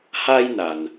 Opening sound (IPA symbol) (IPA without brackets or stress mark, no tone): h